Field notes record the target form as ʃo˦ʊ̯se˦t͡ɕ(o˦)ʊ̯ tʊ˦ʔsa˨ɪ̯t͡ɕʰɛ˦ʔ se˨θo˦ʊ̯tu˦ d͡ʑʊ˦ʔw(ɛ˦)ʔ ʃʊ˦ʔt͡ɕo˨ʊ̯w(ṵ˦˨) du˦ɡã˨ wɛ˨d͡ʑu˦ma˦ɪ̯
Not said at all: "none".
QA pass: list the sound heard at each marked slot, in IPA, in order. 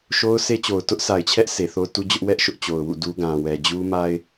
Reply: o˨, ɛ˦, ṵ˦˨

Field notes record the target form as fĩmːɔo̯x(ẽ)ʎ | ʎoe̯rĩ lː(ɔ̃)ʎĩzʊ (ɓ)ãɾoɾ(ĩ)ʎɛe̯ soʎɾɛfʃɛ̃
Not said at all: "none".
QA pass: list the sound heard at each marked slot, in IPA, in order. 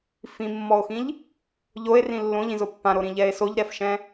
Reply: ĩ, õ, pː, ĩ

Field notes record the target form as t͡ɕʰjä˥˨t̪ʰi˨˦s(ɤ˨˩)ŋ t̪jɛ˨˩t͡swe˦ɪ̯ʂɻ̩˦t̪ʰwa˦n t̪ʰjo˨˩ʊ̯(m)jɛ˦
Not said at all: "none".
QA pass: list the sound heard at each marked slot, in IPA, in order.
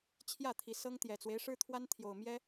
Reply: ɤ˦, m

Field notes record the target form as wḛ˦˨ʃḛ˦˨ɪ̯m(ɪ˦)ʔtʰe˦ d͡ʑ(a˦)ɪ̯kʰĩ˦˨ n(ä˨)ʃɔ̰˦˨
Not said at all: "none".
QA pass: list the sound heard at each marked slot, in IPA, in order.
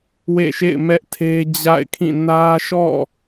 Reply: ɛ˦, a̰˦˨, ä˦

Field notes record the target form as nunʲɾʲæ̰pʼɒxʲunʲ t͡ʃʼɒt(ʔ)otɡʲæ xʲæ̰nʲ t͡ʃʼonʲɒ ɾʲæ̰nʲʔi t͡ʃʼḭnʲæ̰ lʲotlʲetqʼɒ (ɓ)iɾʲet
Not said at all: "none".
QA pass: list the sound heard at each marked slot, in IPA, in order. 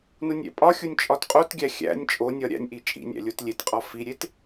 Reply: qʼ, f

